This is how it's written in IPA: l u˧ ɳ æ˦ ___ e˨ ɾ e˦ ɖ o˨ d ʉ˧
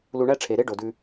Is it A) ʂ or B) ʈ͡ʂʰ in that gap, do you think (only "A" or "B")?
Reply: B